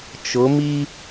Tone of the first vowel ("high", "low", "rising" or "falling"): rising